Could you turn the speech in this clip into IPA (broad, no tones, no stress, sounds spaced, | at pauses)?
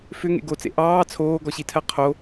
f ʏ ŋ ḛ ɡ o t͡s ḛ ʔ ɑː t͡sʰ oː ɡ ɔ ɕ i tʰ ɜ qʰ o